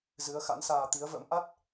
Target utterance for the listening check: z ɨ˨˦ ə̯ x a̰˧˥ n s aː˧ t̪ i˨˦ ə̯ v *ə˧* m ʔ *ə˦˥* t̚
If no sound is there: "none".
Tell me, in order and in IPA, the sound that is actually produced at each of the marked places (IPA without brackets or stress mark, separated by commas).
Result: ə̰˧˥, a˦˥